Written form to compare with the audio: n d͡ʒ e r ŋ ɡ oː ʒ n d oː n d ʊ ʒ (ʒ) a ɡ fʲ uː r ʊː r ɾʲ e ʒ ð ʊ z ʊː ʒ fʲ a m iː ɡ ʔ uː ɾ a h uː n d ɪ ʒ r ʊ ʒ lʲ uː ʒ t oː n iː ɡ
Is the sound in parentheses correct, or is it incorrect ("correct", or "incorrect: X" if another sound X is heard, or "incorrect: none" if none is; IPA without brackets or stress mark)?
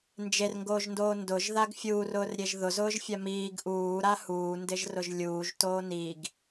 incorrect: ð